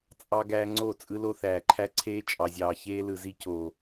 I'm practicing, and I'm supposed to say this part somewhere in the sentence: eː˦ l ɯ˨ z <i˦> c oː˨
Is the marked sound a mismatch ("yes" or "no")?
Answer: no